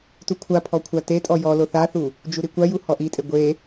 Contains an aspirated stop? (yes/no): yes